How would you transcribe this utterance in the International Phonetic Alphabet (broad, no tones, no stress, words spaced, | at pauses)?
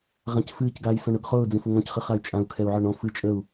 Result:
ʁãcfɨːc ɡaːjsɔ̃ɳʊɡχʊː d͡zĩfʊŋɔ̃c χɨχay̯t͡ʃʼãu̯ kʰɛu̯ʕɔɳɔ̃ fɨ t͡ʃʼəu̯